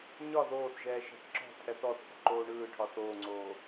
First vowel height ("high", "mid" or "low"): low